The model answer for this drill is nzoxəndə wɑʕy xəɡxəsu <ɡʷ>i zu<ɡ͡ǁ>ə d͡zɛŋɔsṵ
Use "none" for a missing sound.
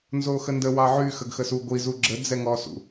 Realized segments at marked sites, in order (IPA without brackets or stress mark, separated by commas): ɡʷ, ɡ͡ǁ